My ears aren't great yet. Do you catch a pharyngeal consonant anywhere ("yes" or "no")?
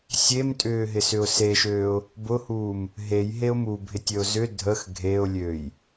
no